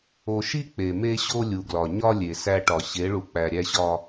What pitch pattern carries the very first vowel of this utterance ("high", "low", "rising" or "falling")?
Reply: low